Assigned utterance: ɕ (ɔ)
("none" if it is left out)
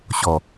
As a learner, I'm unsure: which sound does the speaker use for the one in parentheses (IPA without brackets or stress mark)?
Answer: ɔ